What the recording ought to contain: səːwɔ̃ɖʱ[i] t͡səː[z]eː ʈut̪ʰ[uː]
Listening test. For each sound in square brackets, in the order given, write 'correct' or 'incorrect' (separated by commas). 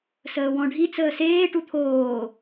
correct, incorrect, incorrect